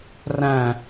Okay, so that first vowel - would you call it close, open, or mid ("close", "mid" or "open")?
open